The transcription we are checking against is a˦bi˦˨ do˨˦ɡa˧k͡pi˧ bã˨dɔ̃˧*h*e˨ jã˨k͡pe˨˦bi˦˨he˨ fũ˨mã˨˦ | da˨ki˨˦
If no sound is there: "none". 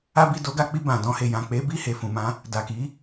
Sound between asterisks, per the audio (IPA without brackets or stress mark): h